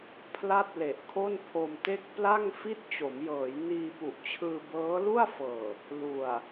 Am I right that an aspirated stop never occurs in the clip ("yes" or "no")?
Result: no